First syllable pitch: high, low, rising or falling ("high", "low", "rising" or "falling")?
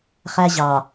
high